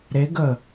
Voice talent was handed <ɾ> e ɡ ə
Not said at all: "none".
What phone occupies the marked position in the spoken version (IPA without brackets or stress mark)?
ɾ